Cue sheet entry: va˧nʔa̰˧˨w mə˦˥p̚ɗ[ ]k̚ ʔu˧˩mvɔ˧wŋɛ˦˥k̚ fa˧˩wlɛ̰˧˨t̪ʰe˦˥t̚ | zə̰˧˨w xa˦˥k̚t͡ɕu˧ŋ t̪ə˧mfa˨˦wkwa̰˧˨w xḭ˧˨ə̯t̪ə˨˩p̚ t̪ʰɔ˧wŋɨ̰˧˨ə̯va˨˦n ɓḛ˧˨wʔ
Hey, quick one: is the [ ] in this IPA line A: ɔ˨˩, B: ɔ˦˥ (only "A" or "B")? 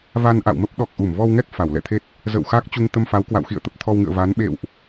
A